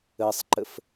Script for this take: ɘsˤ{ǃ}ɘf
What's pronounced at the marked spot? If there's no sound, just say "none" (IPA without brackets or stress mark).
ǃ